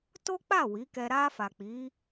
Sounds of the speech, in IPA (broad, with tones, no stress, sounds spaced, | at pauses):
t o˦ k͡p a˦˨ w i˨˦ k ɛ˧ ɾ a˧ f a˨ k͡p i˨˦